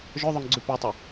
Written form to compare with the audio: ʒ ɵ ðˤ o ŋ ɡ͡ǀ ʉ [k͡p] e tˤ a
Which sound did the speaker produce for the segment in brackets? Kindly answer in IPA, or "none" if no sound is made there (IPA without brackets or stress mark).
p